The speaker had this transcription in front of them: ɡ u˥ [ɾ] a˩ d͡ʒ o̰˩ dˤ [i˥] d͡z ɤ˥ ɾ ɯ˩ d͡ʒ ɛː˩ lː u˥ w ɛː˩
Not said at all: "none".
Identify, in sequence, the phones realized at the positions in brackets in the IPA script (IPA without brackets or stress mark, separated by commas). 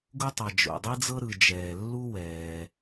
tˤ, i˥